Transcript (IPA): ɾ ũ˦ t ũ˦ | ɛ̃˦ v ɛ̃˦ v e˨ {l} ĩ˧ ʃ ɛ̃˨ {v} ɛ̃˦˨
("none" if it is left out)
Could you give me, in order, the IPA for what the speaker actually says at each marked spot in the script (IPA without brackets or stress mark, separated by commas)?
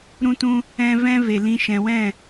l, w